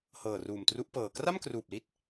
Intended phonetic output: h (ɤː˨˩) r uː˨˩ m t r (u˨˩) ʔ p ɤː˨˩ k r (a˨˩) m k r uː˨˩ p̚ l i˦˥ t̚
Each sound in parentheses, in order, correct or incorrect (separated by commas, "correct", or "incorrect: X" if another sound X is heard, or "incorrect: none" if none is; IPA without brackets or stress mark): correct, incorrect: u˦˥, incorrect: a˥˩